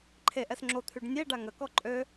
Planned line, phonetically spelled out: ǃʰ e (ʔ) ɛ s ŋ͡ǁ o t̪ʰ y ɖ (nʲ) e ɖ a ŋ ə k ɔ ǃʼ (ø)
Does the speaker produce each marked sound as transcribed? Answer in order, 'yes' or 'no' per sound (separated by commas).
yes, yes, yes